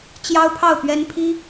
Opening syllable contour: high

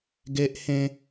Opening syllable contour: high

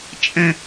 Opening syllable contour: high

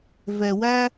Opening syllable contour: low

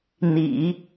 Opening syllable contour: low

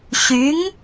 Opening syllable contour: rising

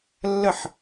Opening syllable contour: falling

